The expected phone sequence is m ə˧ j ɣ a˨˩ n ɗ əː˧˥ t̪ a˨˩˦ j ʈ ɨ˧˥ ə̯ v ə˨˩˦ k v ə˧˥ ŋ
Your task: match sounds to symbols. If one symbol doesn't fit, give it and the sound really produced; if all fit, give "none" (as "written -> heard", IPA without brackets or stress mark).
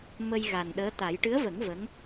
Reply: k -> ŋ